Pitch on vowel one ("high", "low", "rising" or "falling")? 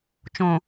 low